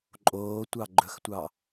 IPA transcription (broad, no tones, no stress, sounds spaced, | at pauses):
ǃʼ oː tʷ ɑ ɡ͡ǃ ɵ x tʷ ɑ